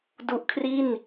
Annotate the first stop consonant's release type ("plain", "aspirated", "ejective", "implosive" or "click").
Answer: plain